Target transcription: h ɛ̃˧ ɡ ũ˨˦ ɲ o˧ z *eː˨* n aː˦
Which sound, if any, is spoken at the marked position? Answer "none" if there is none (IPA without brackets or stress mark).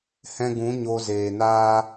eː˨